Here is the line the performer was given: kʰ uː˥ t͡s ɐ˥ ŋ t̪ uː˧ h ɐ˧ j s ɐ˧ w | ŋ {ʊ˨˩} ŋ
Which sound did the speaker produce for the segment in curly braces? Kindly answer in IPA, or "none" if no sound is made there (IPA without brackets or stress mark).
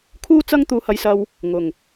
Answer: ʊ˨˩